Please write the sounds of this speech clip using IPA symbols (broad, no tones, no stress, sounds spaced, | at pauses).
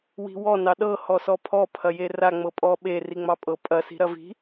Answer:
w i̤ w ɔ n ɑ ɗ ɤ h ɔ s ɔ pʰ ɔ pʰ ɐ j e r a ŋ͡m ɤ pʼ ɔ ɓ e r i ŋ͡m ɑ pʼ ɤ pʼ ɐ s i̤ ɾ ɐ v i̤